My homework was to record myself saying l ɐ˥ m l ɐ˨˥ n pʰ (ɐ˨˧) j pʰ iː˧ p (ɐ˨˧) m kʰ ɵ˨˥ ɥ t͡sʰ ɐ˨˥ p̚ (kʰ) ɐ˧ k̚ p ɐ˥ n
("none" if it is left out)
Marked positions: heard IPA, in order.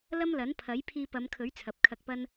ɐ˨˥, ɐ˨˧, kʰ

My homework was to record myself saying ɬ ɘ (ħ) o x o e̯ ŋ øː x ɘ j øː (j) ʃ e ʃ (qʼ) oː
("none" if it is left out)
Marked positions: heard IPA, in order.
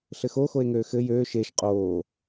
x, none, qʼ

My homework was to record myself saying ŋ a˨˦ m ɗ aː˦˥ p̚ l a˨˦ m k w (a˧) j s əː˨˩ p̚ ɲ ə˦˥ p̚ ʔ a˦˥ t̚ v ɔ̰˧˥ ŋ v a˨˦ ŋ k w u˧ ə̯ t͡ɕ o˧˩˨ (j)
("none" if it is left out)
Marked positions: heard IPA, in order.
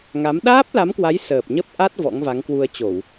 a˨˦, w

